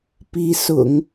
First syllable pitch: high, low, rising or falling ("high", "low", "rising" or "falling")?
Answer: rising